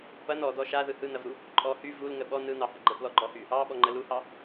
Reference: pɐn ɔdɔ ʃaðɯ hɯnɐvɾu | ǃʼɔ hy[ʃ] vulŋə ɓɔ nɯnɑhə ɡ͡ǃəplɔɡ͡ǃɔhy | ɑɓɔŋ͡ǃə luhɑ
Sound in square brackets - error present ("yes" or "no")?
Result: yes